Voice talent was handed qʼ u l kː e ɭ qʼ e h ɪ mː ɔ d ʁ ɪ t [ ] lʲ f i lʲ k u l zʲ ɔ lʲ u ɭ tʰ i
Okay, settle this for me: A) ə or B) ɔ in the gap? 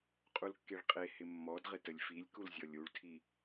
A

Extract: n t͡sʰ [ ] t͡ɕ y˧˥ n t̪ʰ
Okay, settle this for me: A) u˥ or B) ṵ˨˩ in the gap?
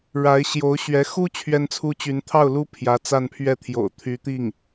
A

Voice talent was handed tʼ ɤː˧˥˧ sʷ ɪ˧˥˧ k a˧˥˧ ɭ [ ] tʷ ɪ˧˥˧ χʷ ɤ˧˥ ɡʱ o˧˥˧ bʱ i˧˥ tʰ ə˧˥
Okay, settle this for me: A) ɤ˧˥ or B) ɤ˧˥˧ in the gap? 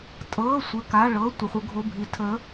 B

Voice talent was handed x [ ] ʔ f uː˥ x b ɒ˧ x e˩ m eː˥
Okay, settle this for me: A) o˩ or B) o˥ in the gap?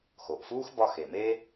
A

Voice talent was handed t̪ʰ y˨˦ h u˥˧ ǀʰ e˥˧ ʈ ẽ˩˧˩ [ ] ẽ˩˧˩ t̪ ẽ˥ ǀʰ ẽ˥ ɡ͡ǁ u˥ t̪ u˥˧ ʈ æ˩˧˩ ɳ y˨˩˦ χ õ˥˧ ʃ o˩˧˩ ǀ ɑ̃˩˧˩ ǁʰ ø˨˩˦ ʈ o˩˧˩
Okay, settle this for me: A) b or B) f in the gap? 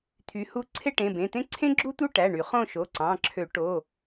A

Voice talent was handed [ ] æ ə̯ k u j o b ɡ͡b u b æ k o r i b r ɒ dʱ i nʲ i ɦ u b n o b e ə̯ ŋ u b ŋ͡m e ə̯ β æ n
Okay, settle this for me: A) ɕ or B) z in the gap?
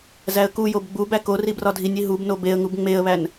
B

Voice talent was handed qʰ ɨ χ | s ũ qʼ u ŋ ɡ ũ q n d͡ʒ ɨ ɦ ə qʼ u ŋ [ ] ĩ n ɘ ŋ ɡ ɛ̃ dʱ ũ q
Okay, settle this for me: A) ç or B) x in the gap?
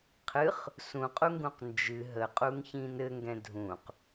A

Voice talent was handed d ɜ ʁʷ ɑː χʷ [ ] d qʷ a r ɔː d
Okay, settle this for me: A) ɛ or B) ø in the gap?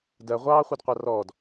A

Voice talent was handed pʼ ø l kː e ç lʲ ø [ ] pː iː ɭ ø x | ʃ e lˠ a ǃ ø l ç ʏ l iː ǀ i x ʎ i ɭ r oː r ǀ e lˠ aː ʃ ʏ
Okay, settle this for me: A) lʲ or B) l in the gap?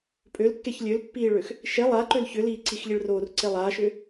B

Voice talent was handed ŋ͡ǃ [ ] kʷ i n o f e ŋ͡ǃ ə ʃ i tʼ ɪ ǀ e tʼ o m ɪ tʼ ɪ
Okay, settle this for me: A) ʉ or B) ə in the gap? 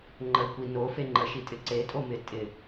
B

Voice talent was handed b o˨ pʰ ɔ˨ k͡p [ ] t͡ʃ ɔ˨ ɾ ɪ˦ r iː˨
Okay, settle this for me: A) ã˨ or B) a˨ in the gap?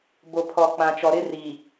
A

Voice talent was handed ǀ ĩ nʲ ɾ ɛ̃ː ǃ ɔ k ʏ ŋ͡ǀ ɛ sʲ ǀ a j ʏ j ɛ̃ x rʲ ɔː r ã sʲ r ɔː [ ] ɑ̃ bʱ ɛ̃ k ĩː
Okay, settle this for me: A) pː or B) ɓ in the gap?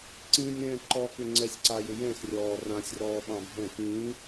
B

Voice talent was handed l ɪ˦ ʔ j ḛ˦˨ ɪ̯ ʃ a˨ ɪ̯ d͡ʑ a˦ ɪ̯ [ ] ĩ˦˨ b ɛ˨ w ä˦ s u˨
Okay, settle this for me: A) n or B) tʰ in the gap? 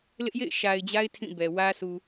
B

